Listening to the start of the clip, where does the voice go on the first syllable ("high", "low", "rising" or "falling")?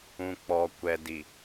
low